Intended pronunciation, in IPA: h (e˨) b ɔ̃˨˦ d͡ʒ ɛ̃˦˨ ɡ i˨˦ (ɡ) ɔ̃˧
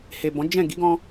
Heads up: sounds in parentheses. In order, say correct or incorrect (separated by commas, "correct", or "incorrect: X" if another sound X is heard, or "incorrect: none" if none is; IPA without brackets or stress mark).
correct, correct